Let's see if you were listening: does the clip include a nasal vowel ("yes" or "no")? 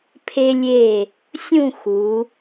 yes